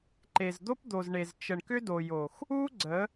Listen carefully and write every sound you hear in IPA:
ǃ e˨ z d̪ o˦ p d̪ o˨ z ɳ e˨ z t͡ʃ ə˨ ɳ k ʏ˦ d o˨ j o˨ x | u˦ ɡ͡ǀ ə˨˦

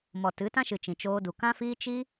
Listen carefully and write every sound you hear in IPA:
m ɔ˨ t ɨ˨˦ t ã˦ ʃ ɨ˨ t͡ʃ ĩ˨ t͡ʃ oː˧ d u˨ k ã˦ f iː˦ t͡ʃ i˦

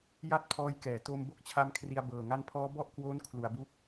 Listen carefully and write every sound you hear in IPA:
j a˦˥ t̚ pʰ ɔː˧ j k ɛː˩˦ t o˧ m b o˥˩ k̚ t͡ɕʰ a˦˥ m kʰ r i˧ a̯ b ɤː˨˩ ŋ a˦˥ n pʰ ɔː˦˥ b ɔ˥˩ ʔ k w oː˦˥ n kʰ l u˩˦ a̯ b u˦˥ k̚

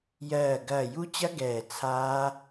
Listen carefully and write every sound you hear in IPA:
j ɜː˧˩ ɡ ɐː˧˩ j u˦˥ t͡ɕ ɐ˦˥ ɡ ɛː˧˩ t͡sʰ aː˦˥

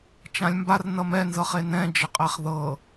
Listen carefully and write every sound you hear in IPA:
t͡ʃ ã lʲ m b a r n ʌ m ɛ n z ɤ χ e n ɛ̃ d͡ʒ ə qʼ ɛ χ ð ɤ

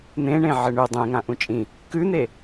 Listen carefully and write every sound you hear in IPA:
n̪ ẽ ɳ ẽ ʕ ɘ ɳ ʉ dˤ ẽ ŋ ã ʔ ũ t͡ʃʼ ĩ | k ʉ n̪ e

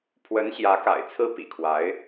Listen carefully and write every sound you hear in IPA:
pʰ w ə˧˥ n ɕ j ä˧˥ k a̰˨˩ ɪ̯ t͡sʰ ɹ̩˥ p ḭ˨˩ kʰ w a˧˥ ɪ̯

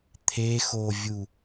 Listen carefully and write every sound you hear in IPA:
t̪ʰ e x o vʲ u

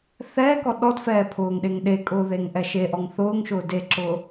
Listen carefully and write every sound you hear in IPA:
θ ɛː k ɔ ɗ ɔ d f ɛː pʰ ʊː ŋ ɗ e ŋ ɗ e kʼ ʊː ð e ŋ ʔ ɛ ʃ e ʔ ɔ ŋ θ ʊː ŋ ʃ ʊː d e ǁ ʊː

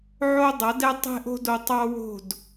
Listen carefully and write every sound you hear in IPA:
ʕ o˦ dˤ ʌ˨˦ d ɛ˦ tˤ e̤˦ ʔ o̤˦ d o˧ tˤ ɑ˦ w o̤˦˨ d

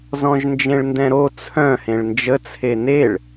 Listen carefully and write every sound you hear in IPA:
z ɔ̃ ʒ n d͡ʒ ẽ ɭ n d ɛ̃ ɾ o t͡sʰ œ̃ h ẽ ɭ n d͡ʒ ə t͡sʰ e n e ɭ

